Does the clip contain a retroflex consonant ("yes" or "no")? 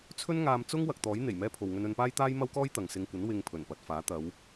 no